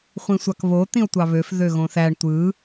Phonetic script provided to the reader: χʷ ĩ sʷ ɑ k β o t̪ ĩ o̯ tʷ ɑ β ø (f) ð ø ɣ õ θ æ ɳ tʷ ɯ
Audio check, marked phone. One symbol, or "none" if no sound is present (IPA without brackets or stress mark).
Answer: f